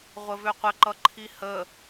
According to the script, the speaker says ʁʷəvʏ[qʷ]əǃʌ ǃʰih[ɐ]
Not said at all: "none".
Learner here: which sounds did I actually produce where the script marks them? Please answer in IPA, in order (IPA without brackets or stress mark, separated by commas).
qʷ, ə